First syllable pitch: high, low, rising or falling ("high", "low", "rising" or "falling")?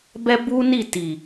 high